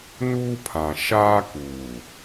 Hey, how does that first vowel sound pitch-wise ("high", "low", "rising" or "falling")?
high